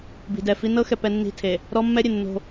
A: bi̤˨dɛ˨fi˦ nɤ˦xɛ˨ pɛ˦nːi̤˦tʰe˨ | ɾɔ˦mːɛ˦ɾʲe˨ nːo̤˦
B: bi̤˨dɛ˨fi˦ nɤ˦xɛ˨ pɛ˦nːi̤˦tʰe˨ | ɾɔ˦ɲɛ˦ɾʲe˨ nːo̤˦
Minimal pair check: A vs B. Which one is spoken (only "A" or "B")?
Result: A